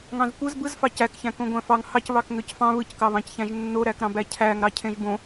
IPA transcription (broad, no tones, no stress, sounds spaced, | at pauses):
ŋ ɑ̃ z kʷ ɯ z b ɯ z f ɑ c æ k ç æ̃ k õ ɡʷ æ̃ f ɑ ŋ h ɑ c β ɑ k ŋ ø c f ɑ̃ β ɯ c k ɑ β ɑ̃ c ç æ̃ ʒ nː o ɾ æ k ɾ ɑ̃ b æ cʰ æ ŋ ɾ ɑ cʰ ẽ ʒ b õ